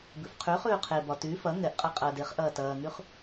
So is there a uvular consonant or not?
yes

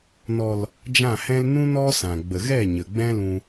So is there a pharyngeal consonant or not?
no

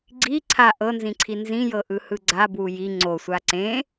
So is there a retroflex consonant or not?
no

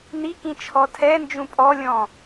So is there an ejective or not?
yes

